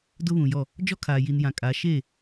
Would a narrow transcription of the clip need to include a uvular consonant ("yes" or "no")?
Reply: no